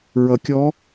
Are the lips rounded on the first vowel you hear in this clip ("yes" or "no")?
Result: no